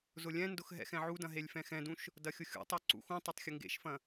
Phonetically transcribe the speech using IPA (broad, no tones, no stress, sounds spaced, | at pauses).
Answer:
z ʊ lʲ ɛ̃ n d ʊ x ɦ ɛ̰ x ɛ̃ ʕ u d ɐ̃ ɦ e lʲ f ɛ̃ x ɛ̃ d ũ ʃ | d ɐ xʲ ʊ xʲ ṵ tˤ ɛ ǀ ṵ x ũ tˤ ɛ tˤ xʲ ʊ ŋ ɡ ḛ ʃ f ɐ̃